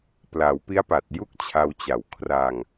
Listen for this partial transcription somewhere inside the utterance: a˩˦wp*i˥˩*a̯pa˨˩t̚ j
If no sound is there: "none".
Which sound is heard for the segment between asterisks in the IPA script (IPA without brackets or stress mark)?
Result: i˦˥